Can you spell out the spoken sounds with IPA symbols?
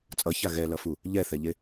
t͡sʼ ʌ ç a ɣ ɛ l ʌ f u | ʎ ɛ θ ɛ ʎ e

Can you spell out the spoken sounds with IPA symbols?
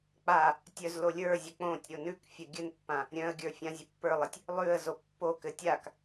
k͡p a | tʲ œ z l o lʲ ə˞ zʲ ɘ k͡p õ tʲ ɾʲ o n ʉ k fʲ ɘ ɡʲ ɘ n pː ã | ɾʲ œ̃ ə̯ ɡʲ ə˞ fʲ ã zʲ ə pː ə˞ lˠ ɘ tʲ | lˠ ʉ ə̯ z o pː o k ɘ tʲ a k

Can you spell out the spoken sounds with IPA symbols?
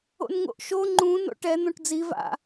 o̰ n ŋ o̰ ʔ ʃ o ŋ͡ǃ ũ n o̰ ʈ ɛ n̪ õ ʈ d͡z i v a̰

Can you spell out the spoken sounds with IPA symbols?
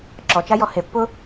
ǁ ɔ t͡ʃ a j ɔ h e pː ʊ

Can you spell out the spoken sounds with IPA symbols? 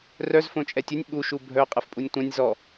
r œ z f õ t͡ʃʼ ɛ tʲ ɘ nʲ ɓ u ʃ u bʱ œ qʼ ɛ f pʼ u nʲ tʷ ã nʲ z ɔ

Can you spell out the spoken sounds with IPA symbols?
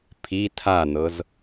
pʰ i tʰ a n̪ ɤ z

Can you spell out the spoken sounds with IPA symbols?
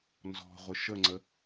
n z ɔ̤ ʁʷ ɪ ʃ ə ŋ͡ǀ ə

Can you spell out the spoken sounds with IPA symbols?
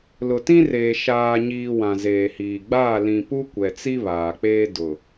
l ʊ˨ t ĩ˦ r eː˨ ʃ aː˨ ɲ iː˨ w ã˨ z eː˨ h iː˨ ɡ͡b aː˦˨ l ĩ˨ p u˦ kʷ ɛ˨ t͡s i˦ β aː˨ k͡p eː˦ d ʊ˨

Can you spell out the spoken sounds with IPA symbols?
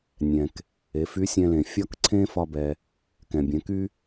nʲ ɛ̃˩ k | e˩˧ f y˧˥ sʲ ɛ̃˧ l ẽ˩ fʲ ɒ˥ k ǀʰ ẽ˥ f ɒ˧ b ɛ˩ | k ɛ̃˩ bʲ ɛ̃˩˧ k y˥

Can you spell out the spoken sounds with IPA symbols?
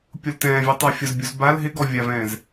pʲ o l t ɛ̃ː vʲ u tˤ a fʲ ʊ z bʲ u z b a l ɦ ɪ ɡ ɔ vʲ a v ɛ̃ː z

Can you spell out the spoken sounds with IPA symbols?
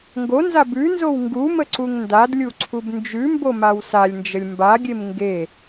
ŋ ɡ o n z a b ʉ n z o w ŋ ɡ u m ə ǀ u ŋ n d a d lʲ u ǀʰ u b n d͡ʒ ʉ m b o m a w s a lʲ n d͡ʒ ə lʲ m b a ɡʲ e m ŋ ɡ e

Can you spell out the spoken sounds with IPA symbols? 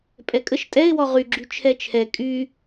pʼ ɛ kʼ ə ʃ tʼ ɛ ɪ̯ w ɔ ʁ y ɡ͡ǁ y t͡ʃʰ ɛ t͡ʃʰ ɛ kʼ y

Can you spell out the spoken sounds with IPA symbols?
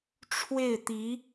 ʈ͡ʂʰ w e˥˩ ɪ̯ t̪ i˧˥

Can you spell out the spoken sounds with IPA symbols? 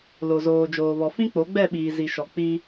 l o˨ z oː˨ d͡ʒ oː˨ β ɔ˨ f ĩ˦ k͡p o˨˦ ɡ͡b ɛ˦˨ ɓ iː˨ z i˨ ʃ ɔ˨ k͡p i˦

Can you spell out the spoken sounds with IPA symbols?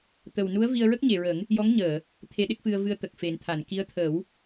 t̪ ə˨˩ w n u˧˥ ə̯ v i˧ ə̯ ɹ ə˦˥ k̚ ɲ e˨˩˨ ɹ ə˨˩˦ ŋ | j ɔ˧˥ ŋ ɲ əː˨˩˨ | t̪ʰ e˧˥ ɗ e˦˥ k̚ f ɨ˧ ə̯ v ɨ˧ ə̯ t̪ ə˨˩ k̚ f e˨˩˦ n t̪ʰ a˨˩˨ n k i˧˥ ə̯ t̪ʰ ə˨˩˦ w

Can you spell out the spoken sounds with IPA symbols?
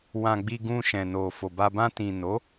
w ã˧ ɡ͡b i˧ ɡ ũ˧ ʃ ɛ̃˨ n o˨ f o˨ b a˧ b ã˧ t ĩ˨ n o˨˦

